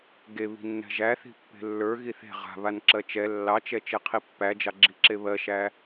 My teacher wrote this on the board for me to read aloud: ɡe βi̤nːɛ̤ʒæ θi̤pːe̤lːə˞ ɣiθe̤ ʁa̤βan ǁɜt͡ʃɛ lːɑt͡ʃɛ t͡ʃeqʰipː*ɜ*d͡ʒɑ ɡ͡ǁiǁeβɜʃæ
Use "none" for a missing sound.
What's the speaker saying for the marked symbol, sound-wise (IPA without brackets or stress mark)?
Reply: æ